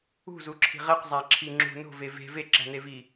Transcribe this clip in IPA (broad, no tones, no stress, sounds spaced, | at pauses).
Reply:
ṳ z u ǁʰ i̤ ʁ e q zˤ æ ǁʰ i ŋ͡ǁ ṳ n o̤ v e v e̤ v e ǁ æ̤ n e v i